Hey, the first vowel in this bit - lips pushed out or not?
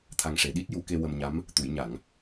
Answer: no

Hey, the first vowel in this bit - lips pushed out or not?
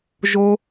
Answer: yes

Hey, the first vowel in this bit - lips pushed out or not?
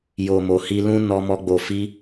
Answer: yes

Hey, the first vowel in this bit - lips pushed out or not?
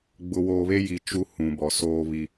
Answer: yes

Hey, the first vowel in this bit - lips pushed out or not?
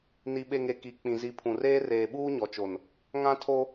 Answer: no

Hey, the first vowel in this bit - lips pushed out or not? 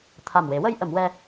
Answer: no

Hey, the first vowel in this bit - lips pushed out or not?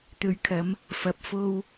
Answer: yes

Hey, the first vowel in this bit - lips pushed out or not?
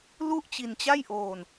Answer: yes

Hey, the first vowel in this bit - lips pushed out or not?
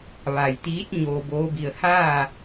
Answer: no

